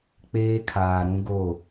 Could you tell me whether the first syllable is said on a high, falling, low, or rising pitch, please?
high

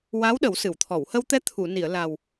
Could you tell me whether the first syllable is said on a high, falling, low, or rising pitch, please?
rising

